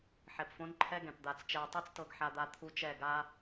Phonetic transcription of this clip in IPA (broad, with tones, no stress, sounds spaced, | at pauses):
ħ ɛ˨ p f õ˦ n ǃʰ ɛ˦ ɡ ɛ̃˨ p d̪ a˨ t͡s t͡ʃ ɛ˨ j tˤ i˦ t͡s t ɤ˨ ɡ ħ a˨ d̪ a˨ t̪ʰ u˦ t͡ʃ ɛ˦˨ ɡ a˦